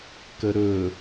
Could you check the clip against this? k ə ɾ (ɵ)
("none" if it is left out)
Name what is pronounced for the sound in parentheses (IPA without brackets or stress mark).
ɵ